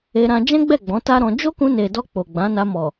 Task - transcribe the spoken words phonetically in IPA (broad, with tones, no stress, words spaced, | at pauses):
e˧ɾã˧ d͡ʒɛ̃˦ɡ͡bɛ˦˨ ɡ͡bɔ̃˨˦ta˦ɾɔ̃˧ d͡ʒo˦kũ˧ne˨dɔ˧ k͡po˨ɡ͡bã˨˦na˧ mɔ˨